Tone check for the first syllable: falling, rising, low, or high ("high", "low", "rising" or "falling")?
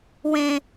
low